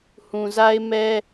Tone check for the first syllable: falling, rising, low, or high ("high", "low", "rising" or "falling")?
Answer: low